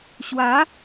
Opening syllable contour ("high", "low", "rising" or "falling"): rising